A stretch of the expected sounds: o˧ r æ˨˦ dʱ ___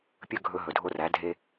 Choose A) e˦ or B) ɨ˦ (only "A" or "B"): A